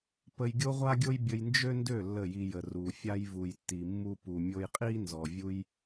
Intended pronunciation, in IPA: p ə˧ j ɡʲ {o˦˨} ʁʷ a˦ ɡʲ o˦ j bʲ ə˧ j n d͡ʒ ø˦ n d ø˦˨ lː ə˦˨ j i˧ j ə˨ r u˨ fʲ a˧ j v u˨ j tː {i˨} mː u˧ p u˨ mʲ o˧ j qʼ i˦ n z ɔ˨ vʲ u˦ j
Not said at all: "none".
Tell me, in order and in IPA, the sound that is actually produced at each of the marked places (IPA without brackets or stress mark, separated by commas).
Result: o˦, i˨